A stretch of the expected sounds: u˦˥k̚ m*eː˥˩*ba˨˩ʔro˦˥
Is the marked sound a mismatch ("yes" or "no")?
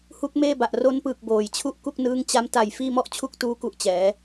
no